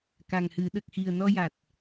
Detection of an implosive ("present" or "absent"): present